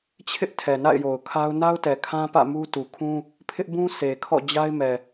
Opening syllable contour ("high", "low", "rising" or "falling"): high